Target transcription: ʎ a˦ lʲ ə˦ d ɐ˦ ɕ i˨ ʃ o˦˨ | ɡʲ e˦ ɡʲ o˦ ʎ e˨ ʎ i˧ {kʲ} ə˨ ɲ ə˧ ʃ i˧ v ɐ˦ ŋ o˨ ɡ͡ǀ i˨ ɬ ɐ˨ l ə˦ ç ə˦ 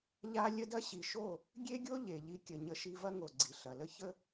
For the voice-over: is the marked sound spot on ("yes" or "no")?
yes